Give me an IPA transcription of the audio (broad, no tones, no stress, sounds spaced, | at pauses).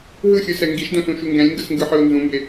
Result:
ɦ ɯ xʲ ɯ s ɛ ŋ ɡ i ʃ d õ s ũ ʃ u ŋ ɡ ɛ̃ lʲ ŋ ɡ ɯ s ŋ ɡ ɯ ħ ɯ o̯ n z ũ m b e